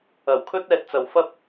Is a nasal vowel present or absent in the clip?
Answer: absent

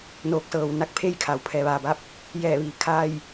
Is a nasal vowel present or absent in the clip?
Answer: absent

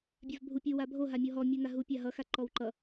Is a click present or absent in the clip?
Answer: present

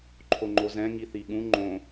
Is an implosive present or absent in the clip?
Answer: present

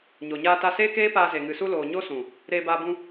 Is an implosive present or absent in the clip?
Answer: absent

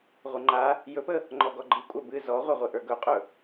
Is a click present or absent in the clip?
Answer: present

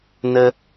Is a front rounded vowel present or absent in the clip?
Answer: absent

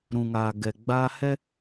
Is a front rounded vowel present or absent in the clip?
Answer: absent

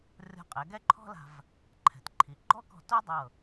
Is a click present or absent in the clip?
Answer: present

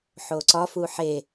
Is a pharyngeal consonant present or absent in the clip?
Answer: present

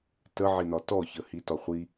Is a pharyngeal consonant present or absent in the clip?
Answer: present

